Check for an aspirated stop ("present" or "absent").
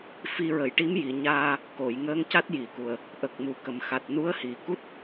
absent